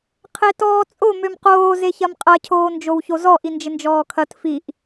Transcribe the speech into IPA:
qʰ e t ɔː t͡sʼ o m ø m q oː z e ç ɐ m qʼ ɐ cʰ oː n d͡ʒ o w ç o z ɔ ʔ i n d͡ʒ ɪ n d͡ʒ ɔː kʰ ɐ t f i ʔ

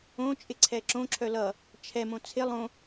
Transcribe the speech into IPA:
õ t͡ʃʼ ɪ ǀʰ ɛ ǁ õ ǁʰ œ l ʌ | t͡ʃʰ ɛ m õ t͡sʰ ɪ lˠ õ

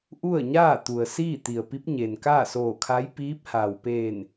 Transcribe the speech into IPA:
ʔ u˥˨ ə̯ ɲ aː˥˨ t̪ u˩ ə̯ s iː˥˨ t̪ i˩ ə̯ p i˧˥ p̚ ɲ e˩ n k aː˥˨ s oː˧˩ kʰ a˧˥ j p iː˧˥ p̚ h a˩ w p eː˧˩ n

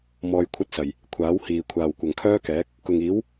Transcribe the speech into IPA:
m ɔː˧ j kʷʰ ɐ˥ t̚ s ɐ˨˩ j | kʷʰ aː˨˥ w h iː˨ kʷʰ aː˨ w kʷ ɐ˨ ŋ kʰ œː˥ k ɛː˨˥ k̚ | k ʊ˨ ŋ iː˨˥ w

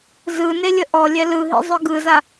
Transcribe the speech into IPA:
z ɯ n e lʲ ə ʔ ɔ lʲ ɛ l ɯ ɦ ḭ zˤ œ ɡ ɯ z a

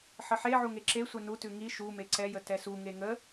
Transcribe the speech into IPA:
ħ ə ħ e ʕ u ŋ e ǁ e sʷ ɛ n u t ʉ ŋ i ʃ u m e ǀ ɛ j ə t ɛ s u ŋ e ŋ ə

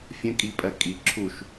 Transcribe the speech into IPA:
fʲ ə̃ kʼ i pʼ ɜ kʼ i ǁʰ u ʃ

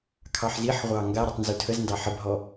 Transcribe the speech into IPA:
kʰ ɑ ħ z i ħ ʁʷ ɑ ŋ ɡ a ɾ ʉ tˤ n z ʉ tʰ ə z n d ɑ ħ ə b ɦ ɔ

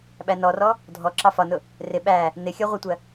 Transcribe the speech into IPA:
ɓ æ n ɔ r ɔ | dʱ ɔ ǁ ɑ f ɒ n ʊ | r ɪ ɓ æ | n ɪ xʲ ʌ ʁʷ ʌ tʷ ɜ

